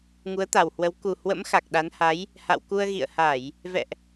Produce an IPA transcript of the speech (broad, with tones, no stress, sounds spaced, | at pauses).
ŋ u˨˦ ə̯ t̪ a˨˩ w h w ə˨˦ w k u˨˩ h w ə̰˧˥ m x a˨˩ k̚ ɗ a˨˦ n h a˨˦ j | h a̰˧˨ w k u˧ ə̯ ɣ ḭ˧˨ ə̯ h a˧˩˨ j | v ɛ̰˧˨ ʔ